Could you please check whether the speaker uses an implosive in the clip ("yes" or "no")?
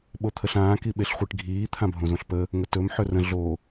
yes